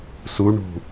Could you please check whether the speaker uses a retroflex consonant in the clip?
yes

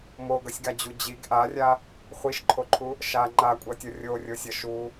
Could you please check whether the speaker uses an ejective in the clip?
yes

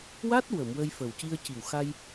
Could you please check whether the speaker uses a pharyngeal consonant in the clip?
no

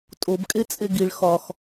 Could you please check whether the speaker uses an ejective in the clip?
yes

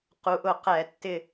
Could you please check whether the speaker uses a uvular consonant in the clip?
yes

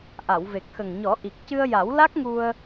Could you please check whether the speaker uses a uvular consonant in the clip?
no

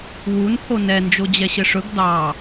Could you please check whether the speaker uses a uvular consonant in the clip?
no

